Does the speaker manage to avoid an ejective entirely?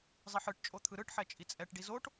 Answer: no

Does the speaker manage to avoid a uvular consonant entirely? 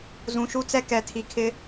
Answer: yes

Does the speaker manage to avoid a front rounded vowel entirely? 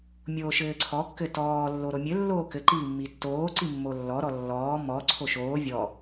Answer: yes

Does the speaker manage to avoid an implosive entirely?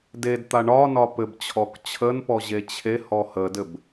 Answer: yes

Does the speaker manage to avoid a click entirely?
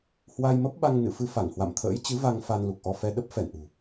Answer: yes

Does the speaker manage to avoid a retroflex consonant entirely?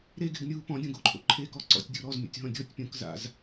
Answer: yes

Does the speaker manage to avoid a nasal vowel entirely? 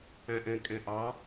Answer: no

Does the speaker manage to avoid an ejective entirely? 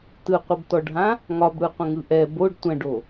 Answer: yes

